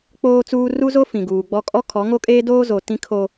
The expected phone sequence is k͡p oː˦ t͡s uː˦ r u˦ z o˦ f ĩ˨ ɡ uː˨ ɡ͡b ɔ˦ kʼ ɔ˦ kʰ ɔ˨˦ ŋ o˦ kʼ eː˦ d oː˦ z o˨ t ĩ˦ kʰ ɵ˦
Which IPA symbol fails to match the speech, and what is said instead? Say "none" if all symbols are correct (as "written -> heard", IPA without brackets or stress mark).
ɵ˦ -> o˦